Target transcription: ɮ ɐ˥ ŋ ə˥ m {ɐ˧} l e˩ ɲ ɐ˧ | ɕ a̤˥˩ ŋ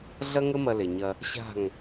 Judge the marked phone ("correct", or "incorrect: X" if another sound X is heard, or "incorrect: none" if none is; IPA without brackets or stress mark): correct